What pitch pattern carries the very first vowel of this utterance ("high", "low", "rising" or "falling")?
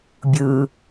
low